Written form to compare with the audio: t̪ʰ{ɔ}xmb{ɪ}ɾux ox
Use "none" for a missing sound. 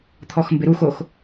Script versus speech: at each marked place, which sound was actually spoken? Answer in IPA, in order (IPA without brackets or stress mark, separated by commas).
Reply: ɔ, ɪ